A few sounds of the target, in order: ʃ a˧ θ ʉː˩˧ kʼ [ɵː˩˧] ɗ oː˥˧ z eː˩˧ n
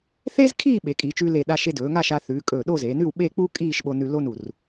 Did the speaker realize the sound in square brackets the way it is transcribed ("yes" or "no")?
no